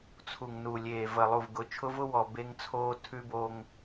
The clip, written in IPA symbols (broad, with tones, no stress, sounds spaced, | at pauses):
t͡sʰ u˨ ŋ n u˨ lʲ eː˨ v ə˨ lˠ u˨ v ɡ ʊ˨˦ t͡ʃʰ ʊ˦ v ʊ˦ w ɔ˨ b e˦ ŋ t͡sʰ oː˦ tʰ ʉ˦ b o˦ ŋ